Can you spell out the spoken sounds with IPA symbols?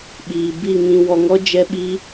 ɓ iː˨ b i˦˨ ŋ ĩ˧ w ɔ˧ ŋ ɔ˦ d͡ʒ ɛ˦ ɓ i˦

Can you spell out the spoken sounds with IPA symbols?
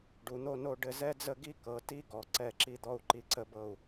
ɖ u˩˧ n̪ o˥˧ n o˥˧ ɖ ɘ˥˧ z ɛ˥ d͡z ə˥˧ ɡ i˥ k ɤ˩˧ t i˥ ɡ ɔ˩˧ ǀ ɛ˧˩ ǁ i˧ d̪ ɔ˧ u̯ ǃ i˧ ǀ ə˧ b ɤ˧˩ u̯

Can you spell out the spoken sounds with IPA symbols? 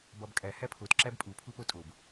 b ɒ b kʼ æ h æ pʰ o t ǁ æ b pʼ u pʰ u p o tʼ o b

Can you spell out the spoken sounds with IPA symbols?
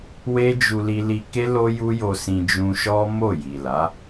w e˦ d͡ʒ u˧ l i˧ l i˧ k e˦ l o˦ j u˦ j o˧ s ĩ˧ d͡ʒ ũ˧ ʃ ɔ˦ m o˦˨ j i˨ l a˨˦

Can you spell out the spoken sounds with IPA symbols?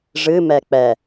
ʐ ɨ m ɛ k͡p ɛ

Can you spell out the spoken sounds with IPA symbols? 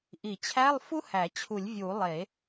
ʔ i˨˩˦ t͡ɕʰ æ˧˥˧ lˠ f u˥ h æ˨˩˦ t͡ɕʰ u˨˩˦ lʲ vʲ u˨˩˦ lˠ e˨˩˦

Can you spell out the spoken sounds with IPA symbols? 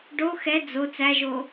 ɖ o x ɛ d͡z o t͡s æ ʒ o

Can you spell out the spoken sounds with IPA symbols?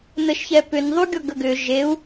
n ə ʃ ç ɛ p ʏ n ðˤ u ɡʲ ɔ ɡ ə ɡ ʏ ʒ e u̯

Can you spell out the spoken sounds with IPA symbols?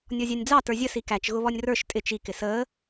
nʲ ɔ zʲ ɑ nʲ d͡z ɑ t ə˞ zʲ ə s i k æ t͡ʃ ɣ ʊ β ɔ nʲ r ə˞ ʃ tʼ ɪ t͡ʃ i k ɪ s əː

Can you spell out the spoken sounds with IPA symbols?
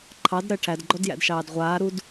ǃʰ ɑ d ɾ ɜ ʈʰ æ d ɡ͡ǃ ɔ d j æ̰ d ʃ ɑː d ʁʷ aː ɾ u d

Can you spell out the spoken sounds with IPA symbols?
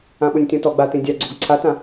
ã ɓ o nʲ tʲ ɔ̃ t ɔ ɡ͡b a t ẽ dʲ a ɡ͡ǀ o ɡ ǀʰ a t ã

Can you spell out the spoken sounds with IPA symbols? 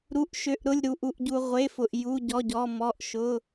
ɾ u˩˧˩ ʔ ʃ ø˩˧˩ ʔ ɾ ʊ˩˧˩ lʲ ɾ u˩ ʔ u˩ ʔ ɟ u˩ ʁʷ e˩˧˩ f ʊ˩ ʔ j u˩˧˩ ɟ ɔ˩˧˩ ɟ ɔ˩˧˩ m ɔ˩˧˩ ʔ ʃ ʊ˩˧˩

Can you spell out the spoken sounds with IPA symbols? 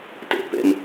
t ḛ p ḛ m

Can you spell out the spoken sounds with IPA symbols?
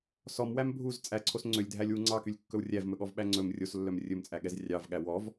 s ɔ m w æ m bʱ u z t͡sʼ æ ǀʰ o s ŋ͡ǀ ø lʲ dʱ æ lʲ w u ŋ͡ǀ ɑ k y lʲ kː ɵ w rʲ æ v m ɵ ɠ ɔ v ɓ æ ŋ͡ǀ ɵ m rʲ o s lː œ m rʲ ɵ m t͡sʼ æ ɠ ɛ z rʲ ɑ v ɠ æ w ɔ v

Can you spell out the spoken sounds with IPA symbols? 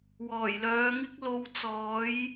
w ɔː˨˩ j l œː˨˧ ŋ ɪ˥ k̚ l o˨ w t͡s ɔː˨˥ j

